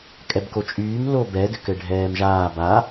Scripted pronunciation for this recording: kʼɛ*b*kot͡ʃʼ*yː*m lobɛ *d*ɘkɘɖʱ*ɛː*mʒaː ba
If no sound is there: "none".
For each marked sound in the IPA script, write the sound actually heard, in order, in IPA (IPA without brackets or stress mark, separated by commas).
b, yː, d, ɛː